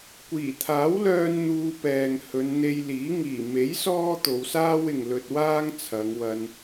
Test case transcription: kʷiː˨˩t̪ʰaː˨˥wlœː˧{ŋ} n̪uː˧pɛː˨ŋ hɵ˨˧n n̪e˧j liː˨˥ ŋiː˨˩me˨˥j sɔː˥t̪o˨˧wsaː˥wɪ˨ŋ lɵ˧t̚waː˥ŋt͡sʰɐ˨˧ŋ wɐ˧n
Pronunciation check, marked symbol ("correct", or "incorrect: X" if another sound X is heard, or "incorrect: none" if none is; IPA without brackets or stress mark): incorrect: n